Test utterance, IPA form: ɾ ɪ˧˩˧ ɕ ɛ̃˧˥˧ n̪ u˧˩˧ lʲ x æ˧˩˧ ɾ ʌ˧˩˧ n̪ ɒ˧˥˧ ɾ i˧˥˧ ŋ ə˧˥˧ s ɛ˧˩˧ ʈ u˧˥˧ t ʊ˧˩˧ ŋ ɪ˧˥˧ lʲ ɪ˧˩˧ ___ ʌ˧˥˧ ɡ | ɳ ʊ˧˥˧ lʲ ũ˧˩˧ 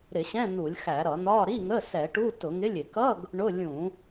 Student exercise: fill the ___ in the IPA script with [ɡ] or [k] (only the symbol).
k